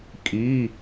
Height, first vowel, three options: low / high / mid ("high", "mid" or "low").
high